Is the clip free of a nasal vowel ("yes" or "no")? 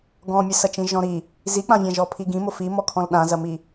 no